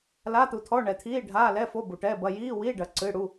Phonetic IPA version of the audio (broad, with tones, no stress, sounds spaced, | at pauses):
l a˧˥˧ t̪ u˨ t̪ʰ ɔ˧˥˧ ɳ ɛ˨ t̪ʰ iː˧˥˧ ɖʱ aː˧˥˧ l ɛ˧˥˧ f o˧˥˧ b u˨ ʈ ɛ˧˥˧ b ɐ˧˥˧ j iː˧˥˧ w i˧˥˧ ɖ ɐ˨ ǀ ɨ˧˥˧ ɽ u˧˥˧